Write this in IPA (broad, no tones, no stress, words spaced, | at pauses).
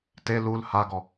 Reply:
te lul haɡɔ